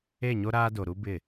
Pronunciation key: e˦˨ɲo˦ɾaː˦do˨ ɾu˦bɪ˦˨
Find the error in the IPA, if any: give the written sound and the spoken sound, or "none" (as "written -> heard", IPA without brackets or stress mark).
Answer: none